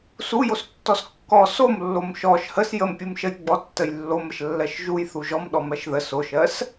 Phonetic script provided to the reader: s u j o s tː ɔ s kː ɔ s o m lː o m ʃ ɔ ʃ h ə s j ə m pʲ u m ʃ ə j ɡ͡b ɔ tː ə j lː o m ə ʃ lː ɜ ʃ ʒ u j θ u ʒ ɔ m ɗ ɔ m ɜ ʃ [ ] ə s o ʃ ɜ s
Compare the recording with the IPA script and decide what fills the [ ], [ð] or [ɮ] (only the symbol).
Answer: ð